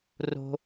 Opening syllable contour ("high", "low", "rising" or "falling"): high